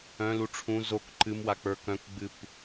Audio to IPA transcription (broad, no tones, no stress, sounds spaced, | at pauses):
œ̃ l u ʈ͡ʂʰ ũ z o k ǃ ɨ m w a k͡p ə˞ k œ̃ k ɡ͡b ɨ p